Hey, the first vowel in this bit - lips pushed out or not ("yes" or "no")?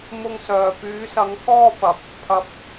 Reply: yes